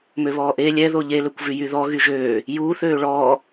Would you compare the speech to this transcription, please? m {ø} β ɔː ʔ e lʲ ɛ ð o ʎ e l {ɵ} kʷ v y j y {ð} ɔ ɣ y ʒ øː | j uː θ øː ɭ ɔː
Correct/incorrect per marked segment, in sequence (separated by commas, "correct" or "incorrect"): correct, correct, correct